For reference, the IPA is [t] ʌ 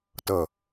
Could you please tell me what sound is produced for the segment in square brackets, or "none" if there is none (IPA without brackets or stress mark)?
t